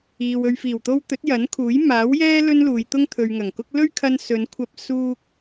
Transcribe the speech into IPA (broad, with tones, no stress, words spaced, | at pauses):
iː˨w ɵ˨ɥfiː˨˩wt̪o˧w t̪ɵ˨˥t̚jɐ˨˥nkʰuː˨˥j maː˨˥w jɛː˥ lɵ˥nluː˨˧jt̪ʊ˥ŋ t̪ʰɵ˨ɥŋɐ˨˩ŋkʊ˥k̚ lɵ˥ɥkʰɐ˧nsɵ˨˧n kʷʰɐ˧p̚suː˧k̚